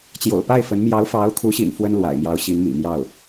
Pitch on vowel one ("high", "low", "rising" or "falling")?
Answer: low